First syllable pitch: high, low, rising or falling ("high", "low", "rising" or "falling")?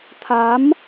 rising